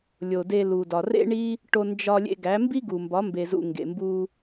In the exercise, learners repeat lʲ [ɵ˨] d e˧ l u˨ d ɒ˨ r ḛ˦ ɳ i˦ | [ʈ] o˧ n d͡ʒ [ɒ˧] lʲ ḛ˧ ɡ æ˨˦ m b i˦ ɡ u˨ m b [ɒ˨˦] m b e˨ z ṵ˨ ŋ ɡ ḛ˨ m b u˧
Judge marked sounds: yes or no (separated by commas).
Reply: no, yes, yes, yes